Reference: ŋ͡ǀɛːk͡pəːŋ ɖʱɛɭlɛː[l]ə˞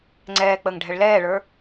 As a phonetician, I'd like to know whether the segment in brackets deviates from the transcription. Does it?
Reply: yes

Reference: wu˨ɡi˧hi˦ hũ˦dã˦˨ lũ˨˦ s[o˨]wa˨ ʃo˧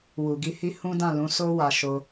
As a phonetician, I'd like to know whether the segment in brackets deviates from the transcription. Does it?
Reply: yes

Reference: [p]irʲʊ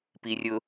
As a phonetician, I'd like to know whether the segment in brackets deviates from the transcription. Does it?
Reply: no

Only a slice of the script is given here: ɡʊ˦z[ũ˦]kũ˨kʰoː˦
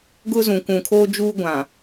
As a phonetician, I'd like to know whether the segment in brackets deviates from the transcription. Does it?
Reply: yes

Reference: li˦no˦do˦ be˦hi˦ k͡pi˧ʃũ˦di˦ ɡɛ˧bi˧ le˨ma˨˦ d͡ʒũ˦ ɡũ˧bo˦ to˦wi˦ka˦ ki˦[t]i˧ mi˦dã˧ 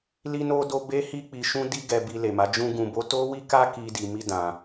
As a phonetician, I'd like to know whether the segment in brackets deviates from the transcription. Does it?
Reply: yes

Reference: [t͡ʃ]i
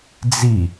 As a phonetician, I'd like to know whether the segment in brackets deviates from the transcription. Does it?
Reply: yes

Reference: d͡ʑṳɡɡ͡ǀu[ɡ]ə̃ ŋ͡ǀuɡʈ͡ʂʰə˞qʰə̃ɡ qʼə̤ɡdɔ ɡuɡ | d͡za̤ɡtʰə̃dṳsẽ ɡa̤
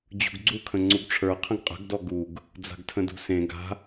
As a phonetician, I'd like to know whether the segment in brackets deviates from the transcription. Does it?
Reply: yes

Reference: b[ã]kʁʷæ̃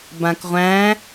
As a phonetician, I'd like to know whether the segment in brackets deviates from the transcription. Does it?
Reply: no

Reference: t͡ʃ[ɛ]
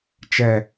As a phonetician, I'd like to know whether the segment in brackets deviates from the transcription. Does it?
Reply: no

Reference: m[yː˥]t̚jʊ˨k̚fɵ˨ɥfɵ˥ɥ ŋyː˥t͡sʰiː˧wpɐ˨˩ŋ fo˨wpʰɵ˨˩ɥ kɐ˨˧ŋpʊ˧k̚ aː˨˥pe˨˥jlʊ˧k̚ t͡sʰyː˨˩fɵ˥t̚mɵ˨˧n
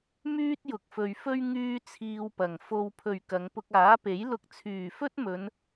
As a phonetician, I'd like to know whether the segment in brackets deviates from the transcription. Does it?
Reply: no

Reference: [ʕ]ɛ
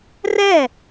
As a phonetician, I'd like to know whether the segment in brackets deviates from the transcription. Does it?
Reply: yes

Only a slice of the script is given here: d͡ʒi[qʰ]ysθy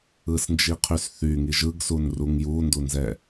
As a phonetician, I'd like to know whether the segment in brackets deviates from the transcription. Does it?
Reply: no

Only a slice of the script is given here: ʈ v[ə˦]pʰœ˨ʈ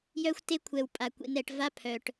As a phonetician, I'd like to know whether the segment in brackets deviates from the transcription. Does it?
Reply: yes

